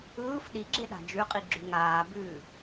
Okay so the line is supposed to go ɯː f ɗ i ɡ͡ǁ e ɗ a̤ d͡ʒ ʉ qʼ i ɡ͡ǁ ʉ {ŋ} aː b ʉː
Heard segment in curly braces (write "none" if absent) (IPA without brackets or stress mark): ŋ